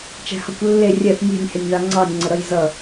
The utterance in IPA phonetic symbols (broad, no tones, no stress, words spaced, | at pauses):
t͡ʃæ̤hʌkʷ lːe rʲɛθ nʲe̤nʲhɪnʲðɑ ŋ͡ǀɑnʲŋ͡ǀə ɾʌjzʌ